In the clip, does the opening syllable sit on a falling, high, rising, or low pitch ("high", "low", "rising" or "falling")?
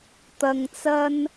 low